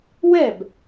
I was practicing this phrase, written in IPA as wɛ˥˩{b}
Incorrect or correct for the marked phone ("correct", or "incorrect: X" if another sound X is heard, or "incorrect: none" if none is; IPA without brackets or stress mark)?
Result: correct